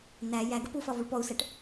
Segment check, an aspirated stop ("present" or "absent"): absent